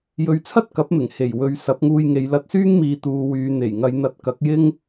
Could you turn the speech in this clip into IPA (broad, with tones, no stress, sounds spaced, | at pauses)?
j ɵ˨˧ ɥ t͡sʰ ɐ˥ t̚ k ɐ˨˥ p̚ m ɪ˨˩ ŋ h e˨˩ j w ɵ˨ ɥ s ɐ˨˥ p̚ ŋ uː˧ j ŋ e˨˧ j l ɐ˧ t̚ s yː˥ ŋ m iː˨ t̪ uː˨ w yː˨ n̪ e˨˩ j ŋ ɐ˨˧ j n̪ ɐ˧ t̚ k ɐ˨˥ k̚ j ɪ˥ ŋ